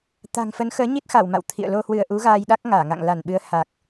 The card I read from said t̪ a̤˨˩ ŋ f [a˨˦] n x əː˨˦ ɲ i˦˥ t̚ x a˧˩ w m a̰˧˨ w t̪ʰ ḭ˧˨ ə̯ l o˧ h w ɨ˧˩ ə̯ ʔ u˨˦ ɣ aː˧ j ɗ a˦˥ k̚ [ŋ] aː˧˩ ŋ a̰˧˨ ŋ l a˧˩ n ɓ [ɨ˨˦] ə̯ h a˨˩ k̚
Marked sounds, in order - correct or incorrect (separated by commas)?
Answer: incorrect, correct, correct